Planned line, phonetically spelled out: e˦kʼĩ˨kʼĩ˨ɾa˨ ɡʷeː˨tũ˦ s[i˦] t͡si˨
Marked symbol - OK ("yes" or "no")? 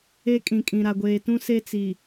no